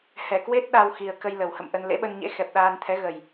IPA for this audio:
h ɛ˧˩ k w e˦˥ t̚ ɗ a˧ w x i˨˩ ə̯ k ə˧ j l ə˨˩ w h ə̰˧˨ m ʔ ə˧ n l ḛ˧˥ ɓ ə˧ n ɲ ḛ˧˥ x ɛ˨˩ p̚ ɗ aː˧ n t̪ʰ ɛ˨˦ ɣ ə˨˩ j

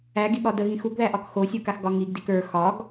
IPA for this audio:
æ ɡ i ɠ ɒ d ə ɣ ĩ x u ɡ ð æ ʔ ɒ k x o sʲ u k a x ɡ ɒ ŋ i ɡ d i k ə˞ x ɒ ɡ

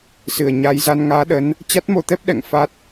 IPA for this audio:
s ɨ˨˩ ə̯ ɲ aː˨˦ j z a˧ n ŋ aː˨˦ ɗ ə˨˦ n | t͡ɕ a˦˥ t̚ m o˧ t̪ ɛ˦˥ p̚ ɗ ɛ̰˧˨ ŋ f a˦˥ t̚

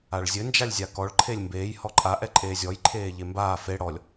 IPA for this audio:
a ɭ zʲ ɘ n d͡ʒ a lʲ zʲ a k ɔ ɭ ǃʰ e lʲ m b eː j h ɔ ǃʼ a ʔ ɛ ǃʼ eː zʲ ɔ j ǃʰ eː ʎ e m b aː f e ɽ ɔ lʲ

